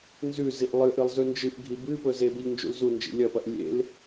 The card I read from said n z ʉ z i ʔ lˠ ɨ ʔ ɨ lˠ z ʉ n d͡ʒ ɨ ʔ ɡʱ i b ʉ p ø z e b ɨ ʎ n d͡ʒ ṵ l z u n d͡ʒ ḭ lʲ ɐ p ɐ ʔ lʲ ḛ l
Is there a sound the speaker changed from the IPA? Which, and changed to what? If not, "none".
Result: ø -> ɵ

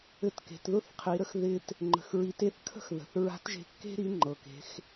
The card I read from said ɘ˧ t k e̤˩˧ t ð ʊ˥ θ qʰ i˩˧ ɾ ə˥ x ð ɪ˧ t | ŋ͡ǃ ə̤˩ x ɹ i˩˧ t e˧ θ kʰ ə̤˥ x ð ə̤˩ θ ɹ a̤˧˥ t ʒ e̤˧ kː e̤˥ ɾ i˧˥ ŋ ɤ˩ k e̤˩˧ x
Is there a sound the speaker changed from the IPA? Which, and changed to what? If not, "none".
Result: ŋ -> ŋ͡ǃ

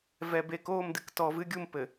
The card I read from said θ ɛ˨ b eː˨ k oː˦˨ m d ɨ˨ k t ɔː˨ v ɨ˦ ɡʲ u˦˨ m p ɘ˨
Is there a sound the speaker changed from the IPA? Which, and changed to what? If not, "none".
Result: θ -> v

